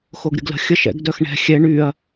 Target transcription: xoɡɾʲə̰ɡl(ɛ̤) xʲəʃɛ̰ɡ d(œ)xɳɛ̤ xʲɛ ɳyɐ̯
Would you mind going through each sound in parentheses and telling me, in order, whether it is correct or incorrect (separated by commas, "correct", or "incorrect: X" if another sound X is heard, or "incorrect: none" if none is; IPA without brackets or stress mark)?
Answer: incorrect: ə̤, correct